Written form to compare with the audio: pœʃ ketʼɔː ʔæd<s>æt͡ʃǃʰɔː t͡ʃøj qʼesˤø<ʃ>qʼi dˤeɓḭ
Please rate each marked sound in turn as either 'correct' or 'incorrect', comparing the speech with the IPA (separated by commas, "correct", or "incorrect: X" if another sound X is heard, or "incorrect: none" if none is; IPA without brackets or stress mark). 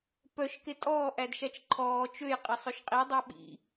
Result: incorrect: ʃ, correct